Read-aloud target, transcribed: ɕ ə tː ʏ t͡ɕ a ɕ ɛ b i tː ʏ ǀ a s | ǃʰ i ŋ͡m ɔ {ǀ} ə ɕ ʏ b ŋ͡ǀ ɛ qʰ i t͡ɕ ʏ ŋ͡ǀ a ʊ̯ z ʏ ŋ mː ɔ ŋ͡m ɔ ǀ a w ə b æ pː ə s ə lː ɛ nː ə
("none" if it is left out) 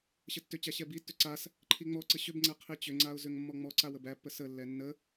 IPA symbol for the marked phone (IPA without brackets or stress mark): ǀ